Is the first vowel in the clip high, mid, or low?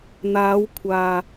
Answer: low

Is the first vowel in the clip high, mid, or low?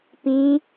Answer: high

